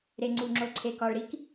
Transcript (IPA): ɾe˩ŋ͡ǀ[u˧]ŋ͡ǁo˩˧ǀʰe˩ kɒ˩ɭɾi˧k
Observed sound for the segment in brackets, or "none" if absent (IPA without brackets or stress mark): u˩